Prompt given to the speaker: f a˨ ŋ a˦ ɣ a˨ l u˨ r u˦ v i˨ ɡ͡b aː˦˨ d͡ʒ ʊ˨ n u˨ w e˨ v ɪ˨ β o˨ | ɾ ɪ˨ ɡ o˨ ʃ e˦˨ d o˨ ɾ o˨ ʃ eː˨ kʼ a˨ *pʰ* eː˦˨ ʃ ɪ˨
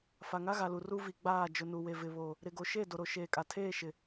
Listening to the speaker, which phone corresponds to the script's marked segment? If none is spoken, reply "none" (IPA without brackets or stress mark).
tʰ